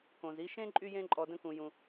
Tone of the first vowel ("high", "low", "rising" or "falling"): low